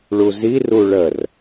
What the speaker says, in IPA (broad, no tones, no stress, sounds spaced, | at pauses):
ɭ u z i r u ɭ ə r